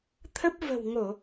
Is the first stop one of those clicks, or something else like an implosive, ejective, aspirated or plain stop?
aspirated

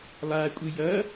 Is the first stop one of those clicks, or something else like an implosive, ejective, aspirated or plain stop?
ejective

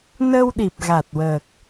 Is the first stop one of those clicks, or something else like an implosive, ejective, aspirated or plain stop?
implosive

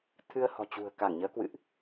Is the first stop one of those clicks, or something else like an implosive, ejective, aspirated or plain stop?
aspirated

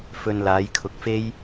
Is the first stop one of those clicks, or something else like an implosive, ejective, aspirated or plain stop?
aspirated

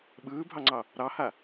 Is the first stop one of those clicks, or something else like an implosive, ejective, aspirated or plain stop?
implosive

